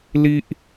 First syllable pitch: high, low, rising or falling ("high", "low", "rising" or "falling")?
high